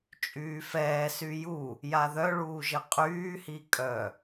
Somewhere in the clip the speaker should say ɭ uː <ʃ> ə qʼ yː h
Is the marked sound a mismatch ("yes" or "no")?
yes